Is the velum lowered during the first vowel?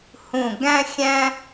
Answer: yes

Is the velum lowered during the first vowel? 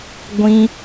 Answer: yes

